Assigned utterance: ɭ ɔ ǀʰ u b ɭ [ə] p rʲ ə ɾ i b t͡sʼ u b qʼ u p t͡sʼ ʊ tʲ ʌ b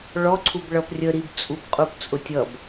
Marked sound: incorrect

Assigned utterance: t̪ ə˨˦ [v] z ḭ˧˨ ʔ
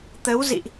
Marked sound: incorrect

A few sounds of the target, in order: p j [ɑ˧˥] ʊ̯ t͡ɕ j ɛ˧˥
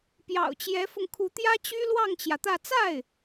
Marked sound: incorrect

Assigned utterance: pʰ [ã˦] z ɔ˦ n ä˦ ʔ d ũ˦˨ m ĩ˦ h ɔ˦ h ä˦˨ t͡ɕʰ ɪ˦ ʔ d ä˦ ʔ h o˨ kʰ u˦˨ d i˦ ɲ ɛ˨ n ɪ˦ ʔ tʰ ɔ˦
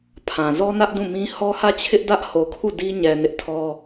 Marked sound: incorrect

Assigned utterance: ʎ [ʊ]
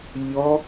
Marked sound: incorrect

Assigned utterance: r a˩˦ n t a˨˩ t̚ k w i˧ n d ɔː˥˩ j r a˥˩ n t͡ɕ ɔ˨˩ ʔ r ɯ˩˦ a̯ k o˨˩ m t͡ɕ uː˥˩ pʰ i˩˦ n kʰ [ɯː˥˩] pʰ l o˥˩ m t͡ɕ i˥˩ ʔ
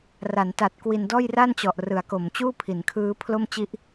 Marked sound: incorrect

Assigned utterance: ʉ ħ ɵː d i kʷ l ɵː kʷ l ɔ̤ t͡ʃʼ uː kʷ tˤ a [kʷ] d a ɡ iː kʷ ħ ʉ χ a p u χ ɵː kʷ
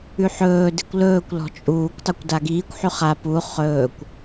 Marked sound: correct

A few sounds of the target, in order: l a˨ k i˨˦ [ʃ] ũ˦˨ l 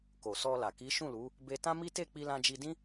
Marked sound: correct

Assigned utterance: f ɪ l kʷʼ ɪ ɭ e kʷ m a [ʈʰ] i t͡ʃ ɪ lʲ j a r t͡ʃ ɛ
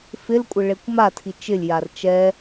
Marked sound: incorrect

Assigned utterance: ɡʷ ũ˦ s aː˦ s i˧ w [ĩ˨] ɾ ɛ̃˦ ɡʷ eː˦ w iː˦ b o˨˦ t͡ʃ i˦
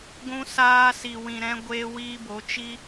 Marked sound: incorrect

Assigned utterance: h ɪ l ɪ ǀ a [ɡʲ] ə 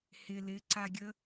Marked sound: correct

